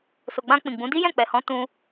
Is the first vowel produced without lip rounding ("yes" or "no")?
no